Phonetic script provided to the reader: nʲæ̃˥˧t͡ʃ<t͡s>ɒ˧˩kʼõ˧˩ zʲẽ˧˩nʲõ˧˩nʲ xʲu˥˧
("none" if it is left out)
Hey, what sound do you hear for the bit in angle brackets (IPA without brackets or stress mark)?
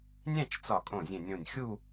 t͡s